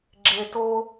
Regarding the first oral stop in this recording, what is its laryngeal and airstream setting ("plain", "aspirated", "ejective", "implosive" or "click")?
click